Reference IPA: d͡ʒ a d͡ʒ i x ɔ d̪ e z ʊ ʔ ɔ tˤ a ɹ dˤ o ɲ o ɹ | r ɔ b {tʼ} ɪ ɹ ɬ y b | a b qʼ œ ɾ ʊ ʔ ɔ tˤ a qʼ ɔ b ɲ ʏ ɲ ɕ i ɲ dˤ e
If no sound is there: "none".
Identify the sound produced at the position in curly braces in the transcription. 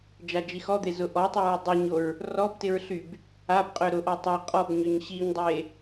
t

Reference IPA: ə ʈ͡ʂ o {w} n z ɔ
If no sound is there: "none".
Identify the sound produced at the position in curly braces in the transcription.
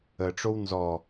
w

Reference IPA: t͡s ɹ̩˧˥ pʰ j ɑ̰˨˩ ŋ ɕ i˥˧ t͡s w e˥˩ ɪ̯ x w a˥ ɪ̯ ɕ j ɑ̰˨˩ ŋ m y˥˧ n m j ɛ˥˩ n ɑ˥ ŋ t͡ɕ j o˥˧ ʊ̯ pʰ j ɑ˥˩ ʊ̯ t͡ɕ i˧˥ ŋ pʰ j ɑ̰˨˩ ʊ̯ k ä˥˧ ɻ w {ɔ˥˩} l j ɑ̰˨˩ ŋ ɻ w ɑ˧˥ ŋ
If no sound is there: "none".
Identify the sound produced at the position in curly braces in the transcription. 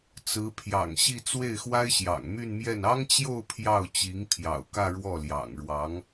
ɔ˥˩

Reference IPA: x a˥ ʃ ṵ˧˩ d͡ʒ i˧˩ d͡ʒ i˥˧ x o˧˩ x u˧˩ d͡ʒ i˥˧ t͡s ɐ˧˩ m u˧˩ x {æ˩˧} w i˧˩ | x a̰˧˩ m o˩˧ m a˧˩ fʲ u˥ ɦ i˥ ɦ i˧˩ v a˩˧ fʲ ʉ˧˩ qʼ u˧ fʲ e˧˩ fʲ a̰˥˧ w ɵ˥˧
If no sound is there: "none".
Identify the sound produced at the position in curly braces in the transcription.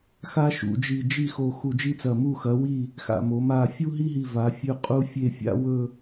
ɐ˩˧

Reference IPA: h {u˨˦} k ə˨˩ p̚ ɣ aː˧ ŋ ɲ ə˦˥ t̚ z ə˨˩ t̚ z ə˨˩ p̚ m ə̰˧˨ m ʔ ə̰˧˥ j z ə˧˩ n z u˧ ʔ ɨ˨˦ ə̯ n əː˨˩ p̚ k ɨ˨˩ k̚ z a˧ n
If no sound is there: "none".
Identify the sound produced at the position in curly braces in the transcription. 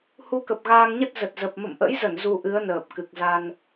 u˨˦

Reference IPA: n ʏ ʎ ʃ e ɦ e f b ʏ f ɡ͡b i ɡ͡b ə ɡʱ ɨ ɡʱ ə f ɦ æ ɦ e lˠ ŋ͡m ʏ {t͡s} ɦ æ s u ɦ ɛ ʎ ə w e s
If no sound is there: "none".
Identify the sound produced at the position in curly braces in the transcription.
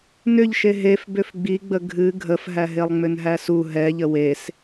n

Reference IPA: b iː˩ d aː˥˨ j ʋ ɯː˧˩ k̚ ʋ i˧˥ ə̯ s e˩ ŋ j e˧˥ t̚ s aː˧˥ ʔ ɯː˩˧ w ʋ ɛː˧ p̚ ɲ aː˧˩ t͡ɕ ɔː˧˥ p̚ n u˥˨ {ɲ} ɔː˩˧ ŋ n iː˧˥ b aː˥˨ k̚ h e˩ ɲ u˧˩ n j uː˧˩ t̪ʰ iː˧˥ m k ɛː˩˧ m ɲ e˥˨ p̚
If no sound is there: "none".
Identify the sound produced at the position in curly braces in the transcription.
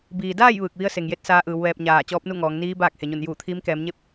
ŋ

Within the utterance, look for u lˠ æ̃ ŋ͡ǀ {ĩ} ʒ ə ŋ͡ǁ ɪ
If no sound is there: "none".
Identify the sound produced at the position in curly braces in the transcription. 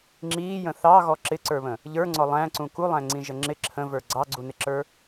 ĩ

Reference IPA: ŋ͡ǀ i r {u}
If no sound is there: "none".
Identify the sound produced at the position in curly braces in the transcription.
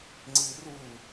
u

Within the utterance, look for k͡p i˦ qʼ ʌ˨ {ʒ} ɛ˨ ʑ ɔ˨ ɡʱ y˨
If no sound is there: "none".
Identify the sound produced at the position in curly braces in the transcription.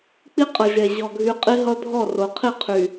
ʒ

